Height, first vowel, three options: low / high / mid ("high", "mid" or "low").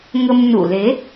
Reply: mid